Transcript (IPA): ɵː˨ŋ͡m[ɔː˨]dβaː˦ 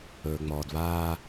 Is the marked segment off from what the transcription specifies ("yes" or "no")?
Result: no